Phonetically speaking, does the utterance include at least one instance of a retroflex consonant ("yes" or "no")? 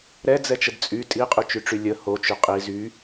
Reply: yes